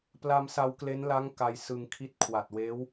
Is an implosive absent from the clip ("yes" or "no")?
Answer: yes